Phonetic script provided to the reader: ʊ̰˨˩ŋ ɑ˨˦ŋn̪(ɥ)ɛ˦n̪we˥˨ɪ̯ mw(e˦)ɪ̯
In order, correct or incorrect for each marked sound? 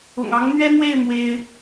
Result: correct, correct

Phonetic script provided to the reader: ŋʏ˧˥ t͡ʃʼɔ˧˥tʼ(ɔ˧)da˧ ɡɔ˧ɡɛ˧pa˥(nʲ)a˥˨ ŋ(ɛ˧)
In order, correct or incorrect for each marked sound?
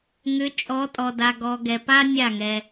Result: correct, correct, correct

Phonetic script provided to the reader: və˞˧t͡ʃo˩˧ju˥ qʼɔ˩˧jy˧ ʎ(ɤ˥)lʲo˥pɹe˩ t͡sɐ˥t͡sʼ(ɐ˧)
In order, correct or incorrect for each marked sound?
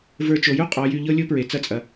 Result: correct, incorrect: ɐ˩

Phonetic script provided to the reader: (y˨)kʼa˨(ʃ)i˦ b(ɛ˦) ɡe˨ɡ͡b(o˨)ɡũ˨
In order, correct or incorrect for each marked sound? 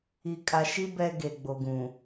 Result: incorrect: i˨, correct, correct, correct

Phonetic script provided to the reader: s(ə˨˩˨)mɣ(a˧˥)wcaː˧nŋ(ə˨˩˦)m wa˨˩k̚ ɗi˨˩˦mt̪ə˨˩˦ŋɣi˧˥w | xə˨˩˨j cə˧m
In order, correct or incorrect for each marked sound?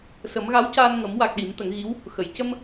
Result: incorrect: ə˨˩˦, correct, correct

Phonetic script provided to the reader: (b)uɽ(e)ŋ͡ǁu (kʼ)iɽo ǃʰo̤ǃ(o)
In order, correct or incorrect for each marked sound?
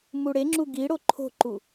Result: incorrect: m, correct, incorrect: ɡ, incorrect: u

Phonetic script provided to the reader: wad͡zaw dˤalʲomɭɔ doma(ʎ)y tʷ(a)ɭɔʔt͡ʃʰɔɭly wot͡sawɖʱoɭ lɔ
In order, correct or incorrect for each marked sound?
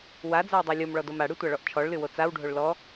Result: incorrect: ɽ, correct

